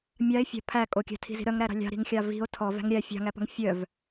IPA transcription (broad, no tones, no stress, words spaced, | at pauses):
mʲɑe̯fʲɑ̤ pʰæ kʼokʲæ̤tʰi̤zi̤ ɾœŋɾæɾɑ̤ lʲɑ̤ɾi̤ŋxʲɑ vi̤o̯ tʰɔvæ̤ŋ ɾʲæ fʲɑ̤ŋæpɔ̤ŋ fʲœv